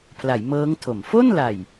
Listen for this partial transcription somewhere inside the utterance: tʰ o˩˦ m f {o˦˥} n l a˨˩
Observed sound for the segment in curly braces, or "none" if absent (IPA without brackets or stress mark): o˥˩